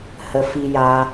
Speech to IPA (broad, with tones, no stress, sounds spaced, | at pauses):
h ə˧ f i˦ j aː˦